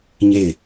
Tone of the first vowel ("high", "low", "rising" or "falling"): falling